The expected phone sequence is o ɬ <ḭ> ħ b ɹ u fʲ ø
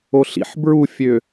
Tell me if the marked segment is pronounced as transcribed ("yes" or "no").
yes